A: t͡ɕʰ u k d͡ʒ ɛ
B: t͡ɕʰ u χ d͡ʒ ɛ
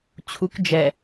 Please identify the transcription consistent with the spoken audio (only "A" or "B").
A